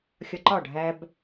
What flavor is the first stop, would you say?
click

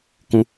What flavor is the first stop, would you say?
plain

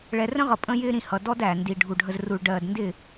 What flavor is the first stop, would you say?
ejective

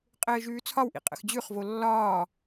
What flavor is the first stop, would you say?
ejective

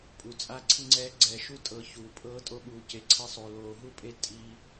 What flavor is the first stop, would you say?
ejective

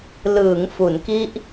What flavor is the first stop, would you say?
plain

